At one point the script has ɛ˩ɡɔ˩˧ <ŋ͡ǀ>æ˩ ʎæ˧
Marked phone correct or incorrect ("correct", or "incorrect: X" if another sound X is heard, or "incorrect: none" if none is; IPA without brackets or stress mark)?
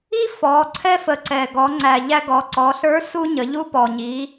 correct